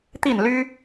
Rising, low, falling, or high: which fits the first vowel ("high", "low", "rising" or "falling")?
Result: falling